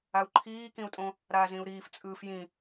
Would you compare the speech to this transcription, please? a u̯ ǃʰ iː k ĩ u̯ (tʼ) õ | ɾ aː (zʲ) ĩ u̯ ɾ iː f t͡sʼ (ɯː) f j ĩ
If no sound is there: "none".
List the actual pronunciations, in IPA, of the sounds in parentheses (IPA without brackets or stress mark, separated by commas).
tʼ, z, ɯː